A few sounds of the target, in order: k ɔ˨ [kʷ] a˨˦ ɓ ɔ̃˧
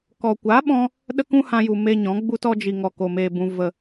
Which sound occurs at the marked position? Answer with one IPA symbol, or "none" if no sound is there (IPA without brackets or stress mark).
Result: kʷ